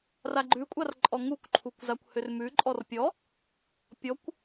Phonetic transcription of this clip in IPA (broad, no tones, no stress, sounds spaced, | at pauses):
r a ɡ͡ǃ ʉ kʷʼ a r ǃʼ ɔ ŋ u kʷ ǃʰ u kʷ z a kʷ h ʏ r m ʉ ǃʼ ɔ r pʲ ɔ | pʲ ɔ kʷ